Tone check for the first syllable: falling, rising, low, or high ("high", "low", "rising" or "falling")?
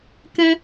high